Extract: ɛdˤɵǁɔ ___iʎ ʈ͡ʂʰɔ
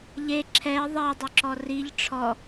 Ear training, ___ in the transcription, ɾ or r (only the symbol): r